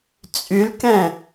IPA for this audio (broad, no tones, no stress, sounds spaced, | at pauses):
t͡sʼ y l k ɛ̃